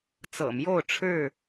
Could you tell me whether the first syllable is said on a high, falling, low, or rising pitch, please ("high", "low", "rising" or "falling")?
low